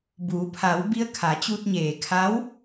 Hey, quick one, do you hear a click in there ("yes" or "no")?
no